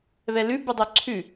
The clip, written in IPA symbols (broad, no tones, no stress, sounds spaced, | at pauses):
β ɛ l ʉ b ʉ dˤ ø ǀʰ ʉ